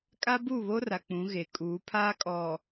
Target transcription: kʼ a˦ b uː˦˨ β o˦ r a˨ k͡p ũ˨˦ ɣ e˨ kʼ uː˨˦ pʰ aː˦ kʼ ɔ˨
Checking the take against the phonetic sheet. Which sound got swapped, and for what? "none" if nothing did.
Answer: none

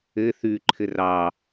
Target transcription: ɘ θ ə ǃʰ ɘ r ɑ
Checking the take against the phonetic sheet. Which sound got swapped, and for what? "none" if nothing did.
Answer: ə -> ʉ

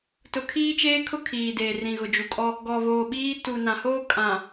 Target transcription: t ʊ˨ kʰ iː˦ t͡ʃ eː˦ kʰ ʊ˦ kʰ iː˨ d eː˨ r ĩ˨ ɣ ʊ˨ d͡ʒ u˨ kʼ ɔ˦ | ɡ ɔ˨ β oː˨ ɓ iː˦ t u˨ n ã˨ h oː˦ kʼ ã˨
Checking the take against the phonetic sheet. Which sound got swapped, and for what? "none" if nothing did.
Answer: none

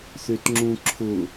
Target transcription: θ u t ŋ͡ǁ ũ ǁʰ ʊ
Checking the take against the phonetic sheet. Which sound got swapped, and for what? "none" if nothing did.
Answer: u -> ʏ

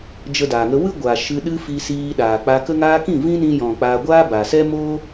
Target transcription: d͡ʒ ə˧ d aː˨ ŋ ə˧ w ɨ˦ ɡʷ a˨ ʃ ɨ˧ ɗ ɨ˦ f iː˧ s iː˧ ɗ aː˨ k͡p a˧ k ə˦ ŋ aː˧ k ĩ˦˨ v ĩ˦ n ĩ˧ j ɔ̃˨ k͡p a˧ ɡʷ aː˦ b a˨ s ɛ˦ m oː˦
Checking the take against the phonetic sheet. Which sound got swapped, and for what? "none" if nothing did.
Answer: none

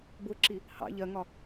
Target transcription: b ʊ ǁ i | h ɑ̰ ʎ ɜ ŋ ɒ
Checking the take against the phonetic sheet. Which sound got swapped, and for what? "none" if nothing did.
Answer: none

